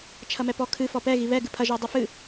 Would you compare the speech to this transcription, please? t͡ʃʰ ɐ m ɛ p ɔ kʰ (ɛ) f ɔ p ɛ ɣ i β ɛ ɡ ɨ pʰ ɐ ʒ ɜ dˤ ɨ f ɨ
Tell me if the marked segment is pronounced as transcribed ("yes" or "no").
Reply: no